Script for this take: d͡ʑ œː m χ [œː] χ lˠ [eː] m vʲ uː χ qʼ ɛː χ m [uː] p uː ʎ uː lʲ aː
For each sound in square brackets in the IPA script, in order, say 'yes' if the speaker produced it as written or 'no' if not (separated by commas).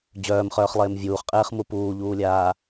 yes, yes, no